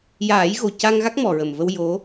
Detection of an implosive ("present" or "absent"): absent